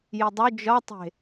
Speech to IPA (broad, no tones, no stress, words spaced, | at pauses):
jidˤu d͡ʒɒtˤe̤